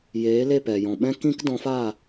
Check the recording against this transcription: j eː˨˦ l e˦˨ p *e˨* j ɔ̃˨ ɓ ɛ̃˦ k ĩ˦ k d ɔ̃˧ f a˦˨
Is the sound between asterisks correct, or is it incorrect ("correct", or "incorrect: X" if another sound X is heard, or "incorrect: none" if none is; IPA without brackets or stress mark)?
incorrect: ɛ˨